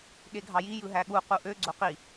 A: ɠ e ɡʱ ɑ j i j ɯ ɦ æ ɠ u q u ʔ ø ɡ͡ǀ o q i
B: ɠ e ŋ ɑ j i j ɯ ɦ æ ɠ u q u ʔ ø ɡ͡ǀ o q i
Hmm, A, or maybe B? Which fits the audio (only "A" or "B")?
A